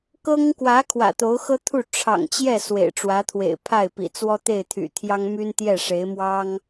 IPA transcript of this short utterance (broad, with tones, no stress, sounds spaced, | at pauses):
k ɤ˥ ŋ k w ä˧˥ kʰ w ä̰˨˩ t̪ o˧˥ ʊ̯ x ɤ˥ t̪ʰ u˥˩ ʈ͡ʂʰ ɑ̰˨˩ ŋ t͡ɕ j ɛ˥˩ s w ḛ˨˩ ɪ̯ ʈ͡ʂ w ä˧˥ t̪ʰ w ḛ˨˩ ɪ̯ pʰ a˥˩ ɪ̯ p ḭ˨˩ t͡s w ɔ˥ t̪ e˥˩ ɪ̯ t̪ʰ y̰˨˩ t̪ʰ j ɑ˥ ŋ m y˥ n t̪ j ɛ˥˩ ʂ e˧˥ ɪ̯ m w ɑ˥ ŋ